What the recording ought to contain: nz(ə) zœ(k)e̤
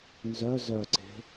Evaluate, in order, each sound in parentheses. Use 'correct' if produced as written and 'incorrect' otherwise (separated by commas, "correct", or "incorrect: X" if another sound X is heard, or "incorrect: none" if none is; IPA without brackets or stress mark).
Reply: incorrect: œ, incorrect: ǀ